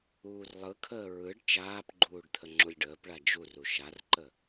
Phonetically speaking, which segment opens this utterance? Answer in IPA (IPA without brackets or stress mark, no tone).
uː